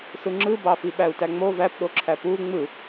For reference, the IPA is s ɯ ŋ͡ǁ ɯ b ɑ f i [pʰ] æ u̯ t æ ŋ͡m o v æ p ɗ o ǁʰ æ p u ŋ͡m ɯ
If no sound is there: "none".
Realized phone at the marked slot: ɓ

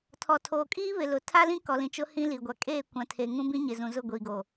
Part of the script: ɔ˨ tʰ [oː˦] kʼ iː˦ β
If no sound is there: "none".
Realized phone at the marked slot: oː˨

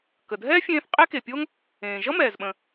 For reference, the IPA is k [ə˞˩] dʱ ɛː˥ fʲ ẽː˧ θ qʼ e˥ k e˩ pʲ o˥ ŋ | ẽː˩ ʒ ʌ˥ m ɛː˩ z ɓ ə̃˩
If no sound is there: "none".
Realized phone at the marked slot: ə˩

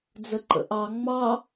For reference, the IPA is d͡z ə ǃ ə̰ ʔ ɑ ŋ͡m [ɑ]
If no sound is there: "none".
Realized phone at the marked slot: ɑ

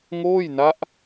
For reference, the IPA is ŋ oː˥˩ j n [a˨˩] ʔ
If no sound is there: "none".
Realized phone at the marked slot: a˦˥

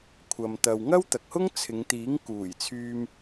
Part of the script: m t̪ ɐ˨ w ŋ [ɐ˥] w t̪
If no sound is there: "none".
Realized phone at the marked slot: ɐ˥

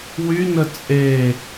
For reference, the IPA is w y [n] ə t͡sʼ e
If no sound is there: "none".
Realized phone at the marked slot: n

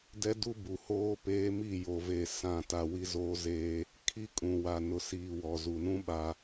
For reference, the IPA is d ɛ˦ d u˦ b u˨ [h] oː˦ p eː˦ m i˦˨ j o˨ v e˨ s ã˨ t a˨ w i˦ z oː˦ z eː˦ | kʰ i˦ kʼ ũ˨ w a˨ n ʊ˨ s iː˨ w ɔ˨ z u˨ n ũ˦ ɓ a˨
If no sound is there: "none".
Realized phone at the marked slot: h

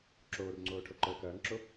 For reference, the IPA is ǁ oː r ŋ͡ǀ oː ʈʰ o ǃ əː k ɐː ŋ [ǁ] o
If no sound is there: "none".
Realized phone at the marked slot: ǁ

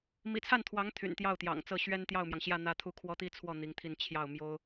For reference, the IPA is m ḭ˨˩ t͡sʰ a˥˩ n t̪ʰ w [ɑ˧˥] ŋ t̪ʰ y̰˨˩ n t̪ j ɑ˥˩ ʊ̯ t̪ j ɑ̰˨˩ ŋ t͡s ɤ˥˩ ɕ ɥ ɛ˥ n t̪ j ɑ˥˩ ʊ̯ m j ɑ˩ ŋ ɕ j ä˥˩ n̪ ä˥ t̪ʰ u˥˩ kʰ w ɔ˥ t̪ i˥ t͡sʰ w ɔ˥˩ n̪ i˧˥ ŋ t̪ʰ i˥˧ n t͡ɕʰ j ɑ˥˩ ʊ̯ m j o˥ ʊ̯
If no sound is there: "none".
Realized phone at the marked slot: ɑ˧˥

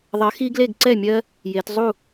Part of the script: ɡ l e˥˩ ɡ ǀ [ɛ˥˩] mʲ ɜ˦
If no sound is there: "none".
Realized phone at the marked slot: ɛ˥˩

